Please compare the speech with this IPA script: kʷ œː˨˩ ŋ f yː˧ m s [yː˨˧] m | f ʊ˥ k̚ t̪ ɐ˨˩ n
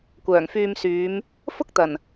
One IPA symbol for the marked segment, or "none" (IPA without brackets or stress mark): yː˨˧